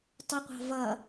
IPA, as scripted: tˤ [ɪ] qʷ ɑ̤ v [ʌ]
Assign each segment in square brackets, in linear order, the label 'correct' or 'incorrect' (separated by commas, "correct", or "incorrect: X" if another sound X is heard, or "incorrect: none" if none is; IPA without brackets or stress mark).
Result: correct, correct